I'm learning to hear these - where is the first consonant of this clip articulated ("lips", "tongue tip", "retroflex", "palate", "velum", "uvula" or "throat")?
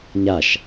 palate